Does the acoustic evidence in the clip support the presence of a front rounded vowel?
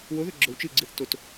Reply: no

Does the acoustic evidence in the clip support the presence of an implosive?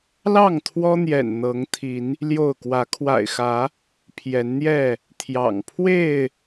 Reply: no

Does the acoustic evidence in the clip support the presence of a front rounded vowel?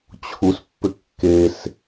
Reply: yes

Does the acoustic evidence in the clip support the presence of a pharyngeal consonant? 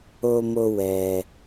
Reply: no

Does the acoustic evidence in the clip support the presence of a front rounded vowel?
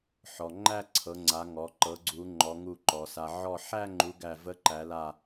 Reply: no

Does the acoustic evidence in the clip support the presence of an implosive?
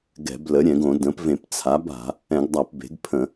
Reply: no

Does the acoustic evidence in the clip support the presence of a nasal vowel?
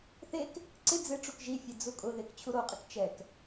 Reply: no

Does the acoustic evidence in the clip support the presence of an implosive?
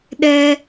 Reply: yes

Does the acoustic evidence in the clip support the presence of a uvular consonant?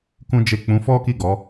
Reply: no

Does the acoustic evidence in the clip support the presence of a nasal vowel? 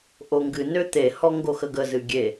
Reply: no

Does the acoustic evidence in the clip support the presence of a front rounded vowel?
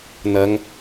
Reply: no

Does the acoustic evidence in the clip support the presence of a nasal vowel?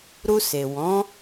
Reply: yes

